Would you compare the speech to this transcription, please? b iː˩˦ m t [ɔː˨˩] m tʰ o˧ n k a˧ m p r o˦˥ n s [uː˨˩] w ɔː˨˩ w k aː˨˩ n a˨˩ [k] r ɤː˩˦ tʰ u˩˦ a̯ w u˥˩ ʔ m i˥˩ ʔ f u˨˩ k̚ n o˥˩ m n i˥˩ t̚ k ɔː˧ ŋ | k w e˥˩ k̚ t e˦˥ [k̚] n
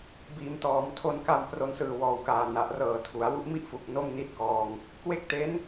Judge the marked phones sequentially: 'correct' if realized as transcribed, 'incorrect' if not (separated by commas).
incorrect, incorrect, incorrect, incorrect